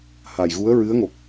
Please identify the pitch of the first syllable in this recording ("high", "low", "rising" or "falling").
low